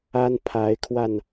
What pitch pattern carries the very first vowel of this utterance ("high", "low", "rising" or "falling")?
high